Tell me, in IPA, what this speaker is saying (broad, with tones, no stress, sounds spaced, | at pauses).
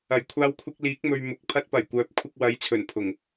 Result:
ɐ˨˩ j kʷʰ aː˧ w kʷʰ ɪ˧ k̚ l iː˨˥ k̚ m ɵ˨ ɥ m ʊ˨˥ k̚ pʰ ɐ˧ t̚ p ɐ˨˩ j kʷ œː˨˥ p̚ kʷʰ ɪ˧ k̚ w ɐ˨˥ j t͡sʰ ɵ˨˩ n pʰ ʊ˨˩ ŋ